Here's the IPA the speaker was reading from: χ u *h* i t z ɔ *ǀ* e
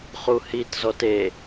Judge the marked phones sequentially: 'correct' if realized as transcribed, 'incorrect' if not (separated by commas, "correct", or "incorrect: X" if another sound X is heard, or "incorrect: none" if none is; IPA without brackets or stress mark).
correct, incorrect: t